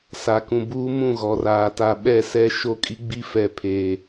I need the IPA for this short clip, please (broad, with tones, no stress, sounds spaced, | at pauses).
s a˨ k ũ˨ b uː˦ m ũ˦˨ ɣ ɔ˨ r aː˨ t a˨ ɓ ɛ˦˨ s ɛ˦ ʃ o˦ kʼ i˦ ɡ͡b i˦ f ɛ˨ pʰ eː˨